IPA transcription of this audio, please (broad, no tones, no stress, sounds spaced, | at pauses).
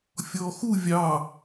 fʲ ɔː x u vʲ ɑ